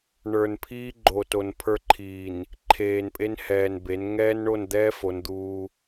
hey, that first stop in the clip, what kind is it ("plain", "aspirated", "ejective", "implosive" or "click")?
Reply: aspirated